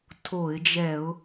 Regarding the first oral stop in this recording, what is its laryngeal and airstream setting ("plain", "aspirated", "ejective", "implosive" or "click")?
aspirated